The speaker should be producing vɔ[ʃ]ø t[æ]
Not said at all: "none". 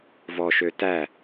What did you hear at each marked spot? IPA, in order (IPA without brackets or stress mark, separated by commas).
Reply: ʃ, æ